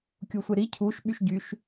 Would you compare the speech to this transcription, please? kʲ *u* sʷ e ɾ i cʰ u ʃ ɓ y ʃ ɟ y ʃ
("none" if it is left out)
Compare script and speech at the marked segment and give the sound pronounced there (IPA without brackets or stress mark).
u